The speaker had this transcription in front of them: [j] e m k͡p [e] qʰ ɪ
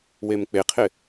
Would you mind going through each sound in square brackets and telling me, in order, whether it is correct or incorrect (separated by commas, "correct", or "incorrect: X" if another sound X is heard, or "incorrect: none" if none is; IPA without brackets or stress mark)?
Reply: incorrect: w, correct